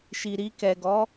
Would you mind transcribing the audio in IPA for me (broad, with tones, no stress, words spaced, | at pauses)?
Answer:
ʃi˨ɾi˧kɛ˨ɡɔ˨˦